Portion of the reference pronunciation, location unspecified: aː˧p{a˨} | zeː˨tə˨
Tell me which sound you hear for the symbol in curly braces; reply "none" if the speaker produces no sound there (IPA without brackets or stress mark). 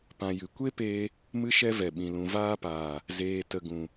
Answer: aː˨